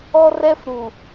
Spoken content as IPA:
ɔ˦rɛ˦fɾu˨

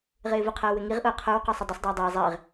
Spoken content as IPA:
ʁɪːvʊqʰəː wɪŋiʁʔʊː qʰə˞wqɔsˤə dˤəsˤdˤʊː dˤɪː zˤɪːʁ

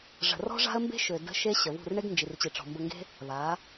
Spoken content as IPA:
ʐə̤˨rɔ̤˦ʐa̤˦ə̯ mbe̤˦ʃø˨də̤˧ ʃe˦ɕə˨βṳ˦˨r ɳe˦ɡnd͡ʒi˨rt͡ɕi˨ ʈ͡ʂɔ̤˨mbə˧ŋɡe̤˦ | βa˨˦

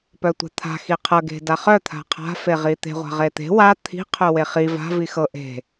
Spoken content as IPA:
pœtʷa̤t̪ʰa̤ xiqʰɤ ɡe̤daχœ t̪ʰa̤qʰa̤ feʁit̪e̤ ʁʷa̤ʁet̪e̤ wa t̪ʰi̤ qʰœweχi va̤ vixɤ ʔe̤

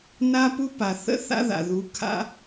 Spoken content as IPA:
na˦pu˦pa˨ θə̰˦ θa̰˦ða̰˨ðu˨˦ kʰa̰˧

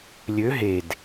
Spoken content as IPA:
lʲø ɦed

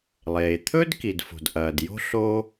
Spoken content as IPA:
lˠeː˩t̪ʰɵ˥dki˩d fo̤˩dʔɐː˩djo̤˥ ɬo˥

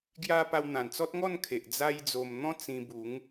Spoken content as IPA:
ɡja˦ pa˧wn̪ã˨˩nt͡sɔ˦t̚ŋɔ˥˧n kʰe˨ʔd͡za˦jd͡zo˧m n̪ɔ̃˦ t͡sĩ˧bu˨˦ŋ

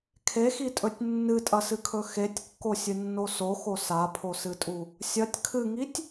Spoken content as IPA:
kʰexitʼɵtʲ nːɨtʼɐsɨkʰɵ xetʲkːosʲɨnːo soxo sapʰosɨtʼu | sʲɐtʲ kʰɨŋitʲ

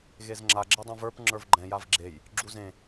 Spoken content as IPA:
ɣezŋ͡ǁa ɡ͡ǁɛdˤũvə˞p ŋ͡ǁə˞vɡ͡ǃɛ̃ javɡ͡ǁej | ɡ͡ǁuzẽ

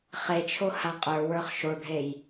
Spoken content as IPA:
χet͡ʃʰo haqʼə˞wə˞χ ʃoɖʱej

